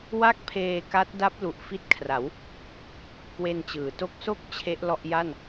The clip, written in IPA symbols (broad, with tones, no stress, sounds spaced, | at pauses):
w a˥˩ k̚ pʰ eː˧ k a˦˥ t̚ d a˦˥ p̚ l u˨˩ ʔ f i˦˥ t̚ kʰ r a˩˦ w | k w e˧ n t͡ɕ ɯː˩˦ t o˦˥ k̚ s o˥˩ k̚ t͡ɕʰ e˦˥ ʔ l ɔ˦˥ ʔ j a˥˩ n